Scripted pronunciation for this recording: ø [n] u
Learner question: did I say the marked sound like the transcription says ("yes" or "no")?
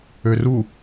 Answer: no